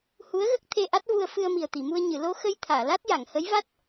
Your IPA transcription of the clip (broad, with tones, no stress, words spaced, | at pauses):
hu˧˥ə̯ɣə˦˥k̚ t̪ʰe˧ʔa˦˥t̚vu˧ə̯ fɨ˧ə̯mi˨˩ə̯t̪i˨˩˨mu˧ə̯ ɲɨ˨˩˨lo˧xə˧j t̪ʰaː˨˩˨la˦˥t̚ja˨˩˨ŋ hə˧˥jva˦˥t̚